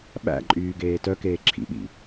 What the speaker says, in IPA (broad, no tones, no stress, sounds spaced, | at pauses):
ɓ æ̰ ǃʼ yː ɡ eː t œ k eː ǁʰ ḭ ɓ ḭ